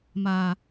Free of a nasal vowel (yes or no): yes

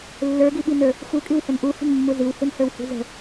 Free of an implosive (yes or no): no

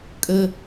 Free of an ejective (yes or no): no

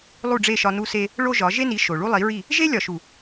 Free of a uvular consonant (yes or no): yes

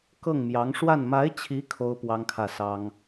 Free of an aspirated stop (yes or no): no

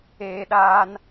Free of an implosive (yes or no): no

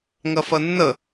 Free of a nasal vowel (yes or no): yes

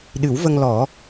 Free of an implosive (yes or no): no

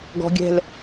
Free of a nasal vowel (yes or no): yes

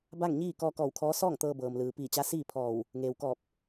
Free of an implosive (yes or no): yes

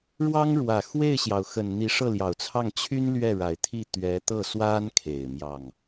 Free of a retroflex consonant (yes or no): no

